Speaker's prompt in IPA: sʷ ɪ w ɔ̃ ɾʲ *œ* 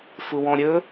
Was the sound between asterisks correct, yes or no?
no